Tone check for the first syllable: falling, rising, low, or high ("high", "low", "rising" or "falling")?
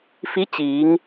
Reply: rising